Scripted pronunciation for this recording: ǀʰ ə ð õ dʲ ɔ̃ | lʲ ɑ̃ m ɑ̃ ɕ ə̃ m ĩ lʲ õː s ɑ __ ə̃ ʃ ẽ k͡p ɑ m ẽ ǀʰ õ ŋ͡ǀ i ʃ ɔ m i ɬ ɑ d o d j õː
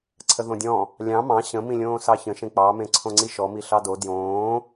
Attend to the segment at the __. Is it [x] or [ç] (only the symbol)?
ç